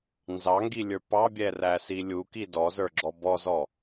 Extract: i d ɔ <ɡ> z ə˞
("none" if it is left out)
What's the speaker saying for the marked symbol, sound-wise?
none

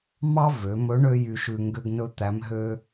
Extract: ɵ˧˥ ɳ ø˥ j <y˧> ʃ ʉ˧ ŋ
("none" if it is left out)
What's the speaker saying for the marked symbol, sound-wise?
y˧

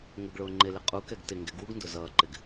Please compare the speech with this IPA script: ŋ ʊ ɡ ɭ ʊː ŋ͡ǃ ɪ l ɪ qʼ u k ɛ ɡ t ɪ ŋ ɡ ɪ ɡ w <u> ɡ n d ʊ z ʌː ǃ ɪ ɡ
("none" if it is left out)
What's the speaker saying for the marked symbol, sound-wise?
u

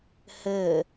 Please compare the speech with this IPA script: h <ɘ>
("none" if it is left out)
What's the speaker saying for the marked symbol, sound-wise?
ɘ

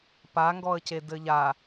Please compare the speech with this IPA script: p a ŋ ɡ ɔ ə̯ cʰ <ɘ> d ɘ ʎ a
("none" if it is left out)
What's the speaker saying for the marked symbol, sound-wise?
e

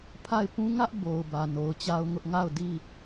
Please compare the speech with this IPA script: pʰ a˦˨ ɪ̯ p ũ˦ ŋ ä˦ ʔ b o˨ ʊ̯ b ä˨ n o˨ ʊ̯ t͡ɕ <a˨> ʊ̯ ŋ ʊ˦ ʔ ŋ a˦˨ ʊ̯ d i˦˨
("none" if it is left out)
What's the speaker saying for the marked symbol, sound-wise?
a˦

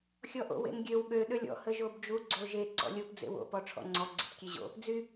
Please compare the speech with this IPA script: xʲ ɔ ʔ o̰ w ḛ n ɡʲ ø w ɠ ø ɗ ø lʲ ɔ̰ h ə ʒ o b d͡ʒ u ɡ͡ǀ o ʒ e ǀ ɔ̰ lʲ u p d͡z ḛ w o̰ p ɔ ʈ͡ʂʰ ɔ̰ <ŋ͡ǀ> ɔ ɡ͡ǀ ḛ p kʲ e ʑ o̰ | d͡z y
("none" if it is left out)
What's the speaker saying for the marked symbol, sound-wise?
ŋ͡ǀ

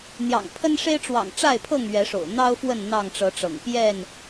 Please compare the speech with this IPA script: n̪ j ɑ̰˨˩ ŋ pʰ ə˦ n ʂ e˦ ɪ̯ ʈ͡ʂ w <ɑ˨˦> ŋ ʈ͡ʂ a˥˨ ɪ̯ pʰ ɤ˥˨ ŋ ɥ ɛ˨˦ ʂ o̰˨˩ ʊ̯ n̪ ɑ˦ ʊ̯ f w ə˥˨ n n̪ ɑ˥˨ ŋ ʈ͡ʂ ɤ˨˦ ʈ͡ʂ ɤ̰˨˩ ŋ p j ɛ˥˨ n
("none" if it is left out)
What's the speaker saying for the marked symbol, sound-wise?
ɑ̰˨˩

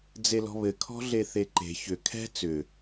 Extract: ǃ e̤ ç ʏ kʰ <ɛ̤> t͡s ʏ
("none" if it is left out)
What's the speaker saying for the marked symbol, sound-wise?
ɛ̤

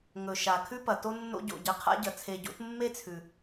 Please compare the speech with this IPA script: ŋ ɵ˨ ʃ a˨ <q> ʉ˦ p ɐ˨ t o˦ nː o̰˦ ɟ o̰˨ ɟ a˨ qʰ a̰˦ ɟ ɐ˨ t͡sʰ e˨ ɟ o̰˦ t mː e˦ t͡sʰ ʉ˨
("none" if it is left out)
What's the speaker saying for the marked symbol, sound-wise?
kʰ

